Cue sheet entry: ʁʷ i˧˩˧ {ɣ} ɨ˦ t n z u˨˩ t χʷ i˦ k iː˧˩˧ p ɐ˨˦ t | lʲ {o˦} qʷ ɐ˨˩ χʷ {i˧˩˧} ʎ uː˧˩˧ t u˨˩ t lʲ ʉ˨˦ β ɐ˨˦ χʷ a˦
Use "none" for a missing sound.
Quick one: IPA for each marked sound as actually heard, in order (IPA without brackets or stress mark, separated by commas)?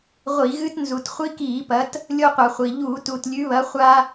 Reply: ɣ, o˦, i˨˩